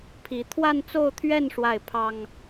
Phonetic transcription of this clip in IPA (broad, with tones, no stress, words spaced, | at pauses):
pʰi˧˥ t̪ʰwa˥˧nt͡so˥˧ʊ̯t̪ʰɥɛ˥˧n ʂwa˥˩ɪ̯pʰɑ˥ŋ